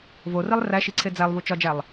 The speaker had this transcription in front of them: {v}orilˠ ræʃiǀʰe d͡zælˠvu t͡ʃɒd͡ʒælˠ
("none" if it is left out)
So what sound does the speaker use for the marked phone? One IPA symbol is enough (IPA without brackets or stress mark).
v